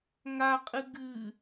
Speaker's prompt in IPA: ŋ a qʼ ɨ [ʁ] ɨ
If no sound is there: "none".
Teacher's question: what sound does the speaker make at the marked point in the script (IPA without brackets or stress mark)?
ɡ